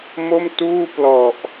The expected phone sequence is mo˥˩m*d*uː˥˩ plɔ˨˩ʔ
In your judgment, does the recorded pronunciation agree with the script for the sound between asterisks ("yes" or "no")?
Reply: no